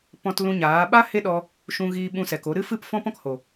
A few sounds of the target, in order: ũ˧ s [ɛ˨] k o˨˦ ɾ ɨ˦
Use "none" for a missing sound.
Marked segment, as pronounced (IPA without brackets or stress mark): ɛ˨